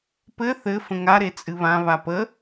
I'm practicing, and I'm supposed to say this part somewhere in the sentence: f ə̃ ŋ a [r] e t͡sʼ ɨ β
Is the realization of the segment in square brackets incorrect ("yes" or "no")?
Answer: yes